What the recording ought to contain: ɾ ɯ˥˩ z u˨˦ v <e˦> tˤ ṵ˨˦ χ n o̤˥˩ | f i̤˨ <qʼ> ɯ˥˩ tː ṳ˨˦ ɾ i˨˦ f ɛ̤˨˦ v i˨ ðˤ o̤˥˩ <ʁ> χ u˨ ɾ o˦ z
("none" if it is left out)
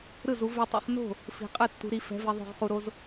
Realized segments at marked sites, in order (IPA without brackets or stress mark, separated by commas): e˦, qʼ, ʁ